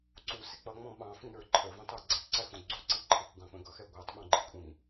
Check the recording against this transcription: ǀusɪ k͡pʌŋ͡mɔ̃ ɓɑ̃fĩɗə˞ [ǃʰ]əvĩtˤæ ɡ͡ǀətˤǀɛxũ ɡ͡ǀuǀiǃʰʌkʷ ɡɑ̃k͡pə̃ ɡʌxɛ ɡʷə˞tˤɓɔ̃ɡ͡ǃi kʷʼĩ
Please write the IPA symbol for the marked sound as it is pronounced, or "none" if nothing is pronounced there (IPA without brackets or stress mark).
ǃʰ